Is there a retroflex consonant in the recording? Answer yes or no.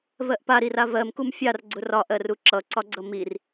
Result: no